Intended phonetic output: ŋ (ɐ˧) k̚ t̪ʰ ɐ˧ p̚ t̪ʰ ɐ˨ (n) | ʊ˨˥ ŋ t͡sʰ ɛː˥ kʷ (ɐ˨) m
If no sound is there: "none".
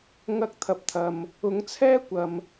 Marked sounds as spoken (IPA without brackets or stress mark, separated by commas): ɐ˥, m, ɐ˨